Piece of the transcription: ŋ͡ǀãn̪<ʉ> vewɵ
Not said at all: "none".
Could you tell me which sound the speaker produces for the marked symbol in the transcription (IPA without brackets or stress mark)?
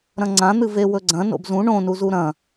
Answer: ɨ